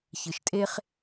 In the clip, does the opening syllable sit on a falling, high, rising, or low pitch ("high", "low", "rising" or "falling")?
low